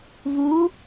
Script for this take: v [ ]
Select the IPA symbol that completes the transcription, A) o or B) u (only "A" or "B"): B